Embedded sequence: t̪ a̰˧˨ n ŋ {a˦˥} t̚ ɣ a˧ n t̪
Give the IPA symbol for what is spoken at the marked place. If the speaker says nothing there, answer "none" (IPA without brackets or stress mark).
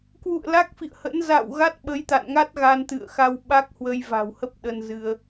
a˦˥